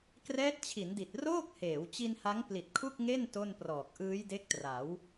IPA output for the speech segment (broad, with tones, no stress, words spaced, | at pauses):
krɛː˦˥t̚t͡ɕʰi˩˦ndi˨˩t̚ roː˥˩k̚heː˩˦w t͡ɕi˧nha˦˥ŋ pli˨˩t̚kʰu˥˩k̚ŋe˥˩n to˥˩nprɔː˨˩k̚ ʔɯː˦˥jde˦˥k̚tra˩˦w